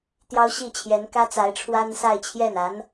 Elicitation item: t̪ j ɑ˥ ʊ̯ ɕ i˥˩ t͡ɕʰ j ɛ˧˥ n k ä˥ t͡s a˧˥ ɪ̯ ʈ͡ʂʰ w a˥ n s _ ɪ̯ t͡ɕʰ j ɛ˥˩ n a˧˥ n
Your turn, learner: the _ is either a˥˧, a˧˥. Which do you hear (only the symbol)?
a˥˧